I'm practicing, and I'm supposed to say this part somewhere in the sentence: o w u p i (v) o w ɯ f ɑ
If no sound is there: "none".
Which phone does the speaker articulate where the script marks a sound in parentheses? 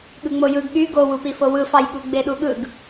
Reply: f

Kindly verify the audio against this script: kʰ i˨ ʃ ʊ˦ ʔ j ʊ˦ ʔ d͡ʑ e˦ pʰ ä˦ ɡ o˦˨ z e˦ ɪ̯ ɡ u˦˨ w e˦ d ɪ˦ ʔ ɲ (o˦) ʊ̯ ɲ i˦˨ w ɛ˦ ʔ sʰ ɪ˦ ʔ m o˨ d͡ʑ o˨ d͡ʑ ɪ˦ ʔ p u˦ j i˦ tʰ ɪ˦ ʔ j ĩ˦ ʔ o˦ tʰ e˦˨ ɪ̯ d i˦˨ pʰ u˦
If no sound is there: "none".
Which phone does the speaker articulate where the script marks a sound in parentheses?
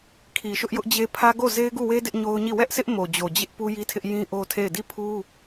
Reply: o˦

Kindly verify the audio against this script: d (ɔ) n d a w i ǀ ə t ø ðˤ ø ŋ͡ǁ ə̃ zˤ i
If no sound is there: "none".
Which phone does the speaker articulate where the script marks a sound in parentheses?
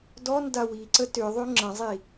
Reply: ɔ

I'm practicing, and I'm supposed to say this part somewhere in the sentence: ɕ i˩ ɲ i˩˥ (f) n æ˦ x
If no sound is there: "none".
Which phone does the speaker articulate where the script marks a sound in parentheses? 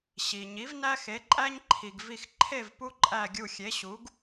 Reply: v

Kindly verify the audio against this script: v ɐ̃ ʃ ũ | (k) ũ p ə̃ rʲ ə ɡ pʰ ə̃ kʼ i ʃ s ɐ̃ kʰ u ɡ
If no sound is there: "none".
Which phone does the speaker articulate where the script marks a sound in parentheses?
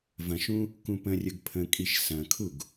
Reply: k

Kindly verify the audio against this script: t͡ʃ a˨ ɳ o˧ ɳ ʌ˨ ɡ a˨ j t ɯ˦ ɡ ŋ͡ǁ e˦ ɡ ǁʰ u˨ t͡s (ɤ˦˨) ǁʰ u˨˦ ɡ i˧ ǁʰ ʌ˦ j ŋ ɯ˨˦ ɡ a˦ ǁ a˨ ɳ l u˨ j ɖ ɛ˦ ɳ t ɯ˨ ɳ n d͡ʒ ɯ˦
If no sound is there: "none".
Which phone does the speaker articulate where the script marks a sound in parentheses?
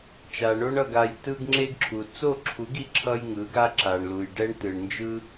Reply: o˦˨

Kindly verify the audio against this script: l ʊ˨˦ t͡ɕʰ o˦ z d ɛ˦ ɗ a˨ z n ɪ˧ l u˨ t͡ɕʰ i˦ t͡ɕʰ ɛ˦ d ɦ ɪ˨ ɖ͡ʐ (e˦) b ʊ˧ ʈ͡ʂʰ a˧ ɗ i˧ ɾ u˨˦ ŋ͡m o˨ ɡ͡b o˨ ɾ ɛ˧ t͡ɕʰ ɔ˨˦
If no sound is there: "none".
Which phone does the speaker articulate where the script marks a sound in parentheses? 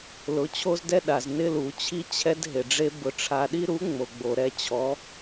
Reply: e˦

